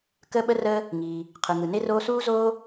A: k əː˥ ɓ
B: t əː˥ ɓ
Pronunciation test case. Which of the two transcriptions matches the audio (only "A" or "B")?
A